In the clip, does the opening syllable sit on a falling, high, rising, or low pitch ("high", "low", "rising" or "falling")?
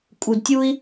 low